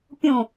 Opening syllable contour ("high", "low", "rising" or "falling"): falling